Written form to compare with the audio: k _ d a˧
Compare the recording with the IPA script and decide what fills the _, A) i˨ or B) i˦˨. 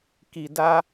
A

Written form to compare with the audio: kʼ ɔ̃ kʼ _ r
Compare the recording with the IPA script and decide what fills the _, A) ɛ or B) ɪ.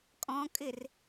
B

